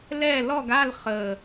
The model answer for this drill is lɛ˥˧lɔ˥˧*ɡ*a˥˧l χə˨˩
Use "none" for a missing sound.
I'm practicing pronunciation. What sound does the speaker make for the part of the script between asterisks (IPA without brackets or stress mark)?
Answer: ɡ